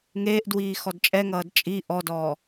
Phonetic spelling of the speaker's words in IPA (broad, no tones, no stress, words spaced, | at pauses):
ŋeːʔdwiː xɔdt͡ʃʼɛŋʌːd t͡ʃʼi ʔɔdɔː